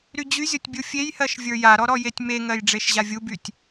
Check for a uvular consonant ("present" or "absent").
absent